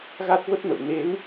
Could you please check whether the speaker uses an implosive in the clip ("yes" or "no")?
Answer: no